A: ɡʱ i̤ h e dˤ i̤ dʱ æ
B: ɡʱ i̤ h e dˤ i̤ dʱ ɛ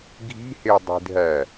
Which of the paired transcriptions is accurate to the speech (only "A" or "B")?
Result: A